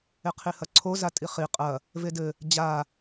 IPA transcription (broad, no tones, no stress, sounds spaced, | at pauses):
e qʰ i h ɐ ǀʰ o z a tʼ i χ i qʼ ɐ | v e d ɘ | d͡ʑ a